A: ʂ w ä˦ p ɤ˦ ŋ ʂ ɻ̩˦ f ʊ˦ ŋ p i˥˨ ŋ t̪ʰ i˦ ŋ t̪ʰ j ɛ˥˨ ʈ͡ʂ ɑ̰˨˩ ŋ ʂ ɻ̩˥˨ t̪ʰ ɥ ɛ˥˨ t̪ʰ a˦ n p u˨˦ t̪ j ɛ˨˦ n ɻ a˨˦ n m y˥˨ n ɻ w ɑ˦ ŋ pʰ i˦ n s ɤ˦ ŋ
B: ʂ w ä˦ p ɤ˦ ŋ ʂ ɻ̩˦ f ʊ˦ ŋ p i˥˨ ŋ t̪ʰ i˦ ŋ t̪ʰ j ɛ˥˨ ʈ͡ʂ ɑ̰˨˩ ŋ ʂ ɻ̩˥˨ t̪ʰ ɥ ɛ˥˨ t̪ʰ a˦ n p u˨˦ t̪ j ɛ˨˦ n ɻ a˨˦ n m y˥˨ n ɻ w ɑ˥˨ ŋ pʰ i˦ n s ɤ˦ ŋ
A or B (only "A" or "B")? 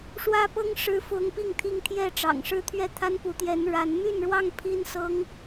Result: B